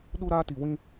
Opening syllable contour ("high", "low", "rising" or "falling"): high